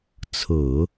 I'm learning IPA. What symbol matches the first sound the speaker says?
t͡sʰ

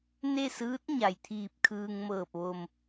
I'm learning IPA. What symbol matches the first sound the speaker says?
n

